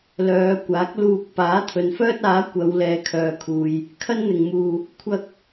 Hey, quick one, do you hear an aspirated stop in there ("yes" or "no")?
yes